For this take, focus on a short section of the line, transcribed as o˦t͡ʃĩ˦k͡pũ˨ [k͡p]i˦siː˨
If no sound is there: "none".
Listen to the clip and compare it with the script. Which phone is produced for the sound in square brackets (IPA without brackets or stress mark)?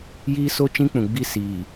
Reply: ɡ͡b